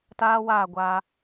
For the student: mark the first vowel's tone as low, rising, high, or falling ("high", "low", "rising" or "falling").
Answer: high